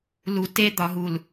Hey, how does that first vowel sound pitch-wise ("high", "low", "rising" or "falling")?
low